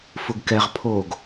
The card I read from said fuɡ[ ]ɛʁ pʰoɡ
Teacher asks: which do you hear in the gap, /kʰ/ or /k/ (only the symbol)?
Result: k